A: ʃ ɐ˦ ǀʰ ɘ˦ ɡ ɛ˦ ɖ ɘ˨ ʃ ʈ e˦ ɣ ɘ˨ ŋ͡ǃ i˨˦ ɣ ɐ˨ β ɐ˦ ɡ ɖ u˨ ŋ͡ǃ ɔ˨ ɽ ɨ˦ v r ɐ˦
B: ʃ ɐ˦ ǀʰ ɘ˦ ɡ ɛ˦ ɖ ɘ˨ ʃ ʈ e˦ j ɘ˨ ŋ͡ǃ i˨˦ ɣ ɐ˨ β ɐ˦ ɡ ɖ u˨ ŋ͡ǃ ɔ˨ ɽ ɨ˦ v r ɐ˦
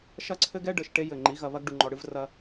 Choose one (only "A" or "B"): B